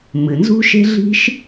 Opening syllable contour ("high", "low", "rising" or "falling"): low